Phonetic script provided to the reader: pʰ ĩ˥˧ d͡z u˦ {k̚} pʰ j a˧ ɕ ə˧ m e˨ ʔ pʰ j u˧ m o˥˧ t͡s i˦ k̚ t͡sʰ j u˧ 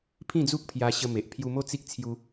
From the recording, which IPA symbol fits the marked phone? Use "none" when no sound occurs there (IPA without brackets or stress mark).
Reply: k̚